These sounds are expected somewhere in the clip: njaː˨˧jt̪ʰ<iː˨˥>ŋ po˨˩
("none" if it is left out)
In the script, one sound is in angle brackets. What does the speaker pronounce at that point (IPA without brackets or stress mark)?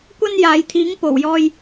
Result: iː˨˥